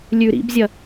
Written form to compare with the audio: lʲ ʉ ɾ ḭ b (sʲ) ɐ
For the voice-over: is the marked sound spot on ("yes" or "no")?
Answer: no